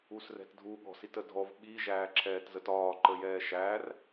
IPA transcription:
usrɛ̤tdʱu ɠɔ̤sitədʱɔv ɓi ʒæːǁʰɛːtzətɒː ǃəjɛːʃær

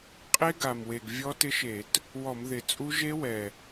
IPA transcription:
qʼe˦˥ɡa˨˩m we˨˩ɡ vʲɔ˦˥tɪ˦˥ʃe˧˩˧t | wɔ˧˩˧mðɪ˨˩t͡sʼu˦˥ ʒe˦˥ wɛ˨˩

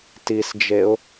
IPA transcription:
tisd͡ʒeʊ̯

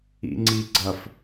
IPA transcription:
ḭŋ͡ǀiɡ͡ǀɐf

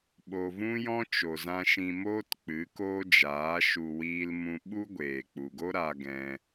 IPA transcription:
ɓo˨vũ˦jɔ̃˦ t͡ʃo˨zã˧ʃĩ˧moː˦t k͡pɨ˨˦koː˦d͡ʒaː˨˦ ʃu˧wiː˦lmũ˦ ɓu˦ɡʷeː˨k͡pu˨ɡo˦ ɾa˦ɡɛ̃˦

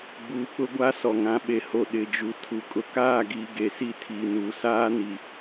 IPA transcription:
ɡ͡buː˨k͡pʊ˦ɡʷa˦ sɔ˨ŋã˨˦ ɓe˨ho˨ ɗɪ˨ d͡ʒu˨tʰu˨ kʼʊ˨kaː˦˨ɡiː˨ ɡe˨si˦˨tʰiː˨nuː˨ saː˦ni˨

